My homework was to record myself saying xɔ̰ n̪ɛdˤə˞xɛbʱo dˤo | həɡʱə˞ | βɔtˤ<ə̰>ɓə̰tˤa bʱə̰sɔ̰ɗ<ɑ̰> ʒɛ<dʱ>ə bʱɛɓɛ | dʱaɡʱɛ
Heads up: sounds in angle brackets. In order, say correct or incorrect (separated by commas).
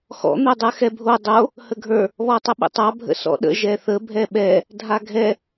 incorrect, incorrect, incorrect